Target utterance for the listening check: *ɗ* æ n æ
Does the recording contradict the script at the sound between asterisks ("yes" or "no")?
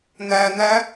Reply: yes